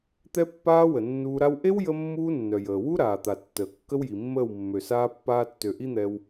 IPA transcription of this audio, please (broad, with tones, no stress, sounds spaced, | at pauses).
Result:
t̪ ɛ˦ pː aː˦ w ə˨ nː uː˧ ɾ a˦ w ʔ e˦ w j ə˦ mː uː˦ nː œ˨ j əː˨ w u˦ ɾ aː˨ t̪ a˨ tː əː˨ kː ə˦ w j i˨ mː əː˦˨ w mː ø˨ s aː˦ pː aː˧ tː ø˨ ʔ i˦ n̪ ɛ˧ w